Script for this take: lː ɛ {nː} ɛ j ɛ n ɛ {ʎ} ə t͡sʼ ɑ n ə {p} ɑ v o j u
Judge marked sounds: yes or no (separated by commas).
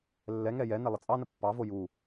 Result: no, no, no